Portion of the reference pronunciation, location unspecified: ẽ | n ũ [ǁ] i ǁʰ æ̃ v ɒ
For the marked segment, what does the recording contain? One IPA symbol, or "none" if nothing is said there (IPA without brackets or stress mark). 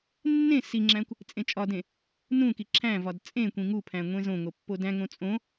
k